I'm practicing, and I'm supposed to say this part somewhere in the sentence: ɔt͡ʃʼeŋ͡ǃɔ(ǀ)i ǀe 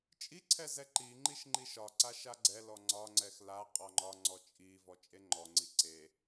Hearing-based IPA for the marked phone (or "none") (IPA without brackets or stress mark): ŋ͡ǀ